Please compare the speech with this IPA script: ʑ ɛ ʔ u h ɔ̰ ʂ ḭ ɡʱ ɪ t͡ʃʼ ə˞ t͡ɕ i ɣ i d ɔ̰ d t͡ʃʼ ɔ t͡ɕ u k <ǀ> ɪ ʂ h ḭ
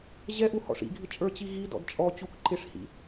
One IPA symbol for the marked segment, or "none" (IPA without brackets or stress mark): ǃ